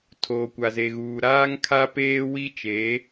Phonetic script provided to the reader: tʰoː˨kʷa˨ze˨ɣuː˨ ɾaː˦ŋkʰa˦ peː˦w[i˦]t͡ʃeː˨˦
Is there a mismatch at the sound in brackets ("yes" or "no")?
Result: no